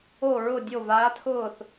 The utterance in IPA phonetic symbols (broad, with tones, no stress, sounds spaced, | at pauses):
o˥˧ ɹ ʊ˥˧ dʲ o˥˧ v aː˦˥ tʰ ʊː˥˧ θ